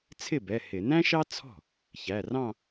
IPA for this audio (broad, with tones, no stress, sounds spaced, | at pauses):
t͡sʰ ɪ˥˩ b ɛ˩˧˩ h ɪ˧˩˧ n æ̃˥ ʃ ɑ˥ t͡sʰ ɔ̤˥˩ | ç æ˩˧˩ r ɑ̃˥˧